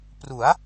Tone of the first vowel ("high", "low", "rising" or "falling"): rising